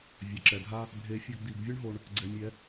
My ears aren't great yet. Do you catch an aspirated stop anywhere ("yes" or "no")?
no